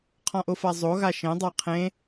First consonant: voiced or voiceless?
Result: voiceless